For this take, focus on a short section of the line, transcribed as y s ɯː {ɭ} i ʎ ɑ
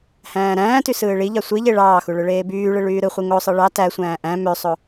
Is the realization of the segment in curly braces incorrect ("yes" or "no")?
no